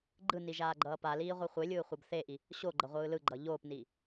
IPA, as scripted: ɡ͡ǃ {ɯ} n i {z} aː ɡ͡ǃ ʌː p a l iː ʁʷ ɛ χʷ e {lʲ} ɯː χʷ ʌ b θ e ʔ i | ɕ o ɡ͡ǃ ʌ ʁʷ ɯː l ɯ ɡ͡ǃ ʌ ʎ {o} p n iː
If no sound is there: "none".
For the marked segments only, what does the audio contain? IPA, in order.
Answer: ɯ, ʒ, lʲ, oː

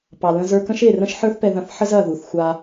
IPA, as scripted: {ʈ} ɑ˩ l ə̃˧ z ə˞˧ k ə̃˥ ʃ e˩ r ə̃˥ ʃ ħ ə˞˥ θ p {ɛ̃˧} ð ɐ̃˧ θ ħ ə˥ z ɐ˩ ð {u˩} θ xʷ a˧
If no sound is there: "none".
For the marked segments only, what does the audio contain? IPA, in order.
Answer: p, ɛ˧, u˩

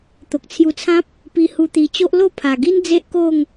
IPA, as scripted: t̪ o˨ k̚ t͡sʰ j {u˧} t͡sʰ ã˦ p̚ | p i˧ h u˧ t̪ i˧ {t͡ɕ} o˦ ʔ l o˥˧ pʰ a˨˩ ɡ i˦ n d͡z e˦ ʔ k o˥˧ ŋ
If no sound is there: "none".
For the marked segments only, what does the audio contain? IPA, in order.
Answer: u˧, t͡ɕ

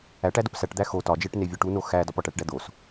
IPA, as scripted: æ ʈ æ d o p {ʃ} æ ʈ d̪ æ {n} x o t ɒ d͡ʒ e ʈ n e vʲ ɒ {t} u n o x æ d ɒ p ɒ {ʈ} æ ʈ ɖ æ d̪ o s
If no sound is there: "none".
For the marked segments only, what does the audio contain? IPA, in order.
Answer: s, none, ʈ, ʈ

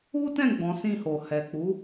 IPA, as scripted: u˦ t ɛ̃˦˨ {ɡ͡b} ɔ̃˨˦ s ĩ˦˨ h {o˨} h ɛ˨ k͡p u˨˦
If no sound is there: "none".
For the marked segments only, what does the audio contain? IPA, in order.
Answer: ɡ͡b, o˨

